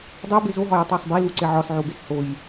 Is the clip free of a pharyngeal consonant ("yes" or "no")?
no